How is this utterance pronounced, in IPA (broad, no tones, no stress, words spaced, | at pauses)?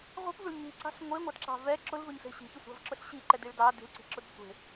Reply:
ʁʷi̤pvʊɭ ɲi̤ǀɑ̤ɬ ŋʷeŋʷɑdǁɑ̤ vɛ ǁʊlvɵɲɬe̤ ɕi̤çɵsʷɑ̤vǁʊɬ ɕiǃɛdiɭ dɑ di̤lǀi̤ǁʊd sʷe̤